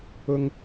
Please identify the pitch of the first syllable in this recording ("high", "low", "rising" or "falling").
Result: high